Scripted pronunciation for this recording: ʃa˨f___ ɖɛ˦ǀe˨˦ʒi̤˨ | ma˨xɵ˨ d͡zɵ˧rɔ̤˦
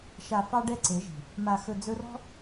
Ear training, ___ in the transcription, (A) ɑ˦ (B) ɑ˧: B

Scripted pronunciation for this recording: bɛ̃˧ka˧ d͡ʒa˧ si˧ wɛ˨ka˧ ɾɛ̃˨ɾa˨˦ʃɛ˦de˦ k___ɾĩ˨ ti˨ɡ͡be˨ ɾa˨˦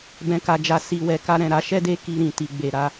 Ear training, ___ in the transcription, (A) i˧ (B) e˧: A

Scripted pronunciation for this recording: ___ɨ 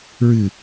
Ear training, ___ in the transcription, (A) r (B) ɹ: B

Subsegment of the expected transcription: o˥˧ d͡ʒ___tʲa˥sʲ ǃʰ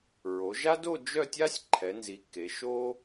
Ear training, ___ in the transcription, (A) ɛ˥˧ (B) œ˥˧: B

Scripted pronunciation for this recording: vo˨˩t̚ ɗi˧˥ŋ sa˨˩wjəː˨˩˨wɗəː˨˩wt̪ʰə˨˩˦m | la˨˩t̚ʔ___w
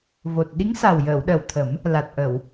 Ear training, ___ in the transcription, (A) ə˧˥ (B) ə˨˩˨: B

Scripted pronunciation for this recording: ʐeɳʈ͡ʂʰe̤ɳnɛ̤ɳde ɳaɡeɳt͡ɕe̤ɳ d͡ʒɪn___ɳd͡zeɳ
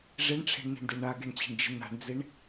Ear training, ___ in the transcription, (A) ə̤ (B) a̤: B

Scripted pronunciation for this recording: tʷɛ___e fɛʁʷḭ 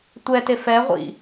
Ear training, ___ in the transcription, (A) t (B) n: A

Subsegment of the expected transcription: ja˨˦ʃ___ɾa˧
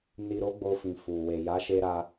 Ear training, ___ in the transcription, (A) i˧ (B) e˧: B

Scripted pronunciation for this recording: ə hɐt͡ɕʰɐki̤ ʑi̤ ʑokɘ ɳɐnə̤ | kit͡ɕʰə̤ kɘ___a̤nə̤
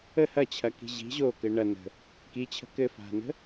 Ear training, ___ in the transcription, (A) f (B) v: A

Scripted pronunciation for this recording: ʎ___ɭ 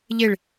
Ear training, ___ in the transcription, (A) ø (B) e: B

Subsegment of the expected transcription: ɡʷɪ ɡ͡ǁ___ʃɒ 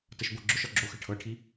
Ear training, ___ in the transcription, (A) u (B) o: B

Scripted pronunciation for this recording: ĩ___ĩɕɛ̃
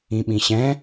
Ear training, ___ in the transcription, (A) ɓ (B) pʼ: A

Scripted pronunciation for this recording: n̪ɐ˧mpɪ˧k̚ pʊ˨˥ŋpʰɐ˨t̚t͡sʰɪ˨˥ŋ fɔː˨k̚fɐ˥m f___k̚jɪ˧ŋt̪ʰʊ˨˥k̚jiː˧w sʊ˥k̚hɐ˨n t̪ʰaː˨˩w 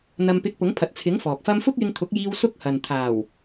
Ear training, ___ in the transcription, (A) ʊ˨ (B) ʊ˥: B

